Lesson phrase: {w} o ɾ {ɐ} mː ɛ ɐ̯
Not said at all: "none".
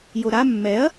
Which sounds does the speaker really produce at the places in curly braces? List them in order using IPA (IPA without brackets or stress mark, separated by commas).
j, a